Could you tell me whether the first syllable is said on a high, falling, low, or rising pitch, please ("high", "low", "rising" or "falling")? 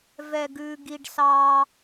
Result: high